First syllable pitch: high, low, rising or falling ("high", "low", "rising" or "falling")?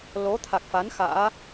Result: rising